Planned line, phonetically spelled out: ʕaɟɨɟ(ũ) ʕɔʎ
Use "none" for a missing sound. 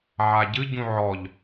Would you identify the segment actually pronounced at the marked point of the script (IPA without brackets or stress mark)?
ũ